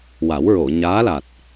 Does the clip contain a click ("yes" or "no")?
no